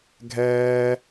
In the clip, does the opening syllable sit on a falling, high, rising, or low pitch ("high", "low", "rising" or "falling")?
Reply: high